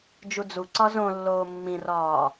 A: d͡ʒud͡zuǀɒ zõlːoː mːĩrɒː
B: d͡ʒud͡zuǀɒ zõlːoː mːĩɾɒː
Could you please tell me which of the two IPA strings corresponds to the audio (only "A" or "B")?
A